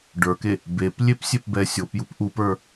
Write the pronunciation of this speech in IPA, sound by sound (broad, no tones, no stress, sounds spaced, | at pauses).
ɖ ə˞ k e | b e p lʲ e p sʲ e p b ɛ sʲ o p j u p ʔ u p ə˞